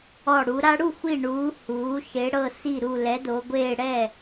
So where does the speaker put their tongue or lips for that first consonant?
retroflex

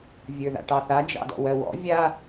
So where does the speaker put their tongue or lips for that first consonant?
lips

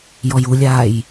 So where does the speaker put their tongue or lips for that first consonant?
palate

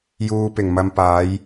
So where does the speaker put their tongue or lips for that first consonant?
palate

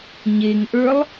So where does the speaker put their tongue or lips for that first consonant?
palate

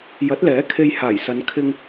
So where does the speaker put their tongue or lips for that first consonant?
palate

